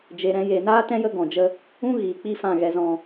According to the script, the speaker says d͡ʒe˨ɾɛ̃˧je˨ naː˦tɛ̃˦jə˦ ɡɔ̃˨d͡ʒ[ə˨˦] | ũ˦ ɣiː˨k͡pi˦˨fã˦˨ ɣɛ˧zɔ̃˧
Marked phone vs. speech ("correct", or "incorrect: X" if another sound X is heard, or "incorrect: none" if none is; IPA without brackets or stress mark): incorrect: ə˧